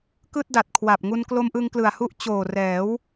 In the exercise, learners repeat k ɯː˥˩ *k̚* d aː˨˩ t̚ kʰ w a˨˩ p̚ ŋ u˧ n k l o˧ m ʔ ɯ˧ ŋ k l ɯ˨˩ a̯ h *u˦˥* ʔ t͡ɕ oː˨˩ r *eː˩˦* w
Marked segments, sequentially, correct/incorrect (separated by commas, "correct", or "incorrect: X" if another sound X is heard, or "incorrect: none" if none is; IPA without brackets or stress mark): incorrect: t̚, correct, incorrect: ɛː˩˦